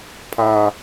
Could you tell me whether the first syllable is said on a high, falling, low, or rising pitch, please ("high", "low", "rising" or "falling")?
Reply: high